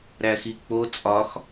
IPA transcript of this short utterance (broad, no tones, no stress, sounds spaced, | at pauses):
ɾ æ x i k͡p o t͡sʼ ɒ x